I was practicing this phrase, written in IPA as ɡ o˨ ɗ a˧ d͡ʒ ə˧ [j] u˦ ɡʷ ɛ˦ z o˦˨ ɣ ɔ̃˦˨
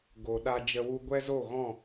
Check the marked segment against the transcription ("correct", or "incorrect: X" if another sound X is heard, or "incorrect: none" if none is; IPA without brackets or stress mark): incorrect: w